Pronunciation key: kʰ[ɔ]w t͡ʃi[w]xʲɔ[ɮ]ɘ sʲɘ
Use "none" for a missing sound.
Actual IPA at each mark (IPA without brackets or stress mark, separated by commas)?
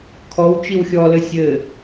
ɔ, w, l